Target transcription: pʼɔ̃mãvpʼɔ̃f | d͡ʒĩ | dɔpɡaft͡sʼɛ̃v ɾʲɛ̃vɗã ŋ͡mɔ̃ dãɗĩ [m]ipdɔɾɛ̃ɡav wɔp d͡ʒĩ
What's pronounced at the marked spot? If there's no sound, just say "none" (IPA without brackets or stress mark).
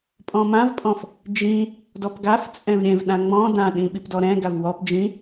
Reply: ɓ